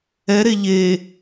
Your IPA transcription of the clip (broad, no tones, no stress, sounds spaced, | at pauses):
ɛ ɾ e ʎ e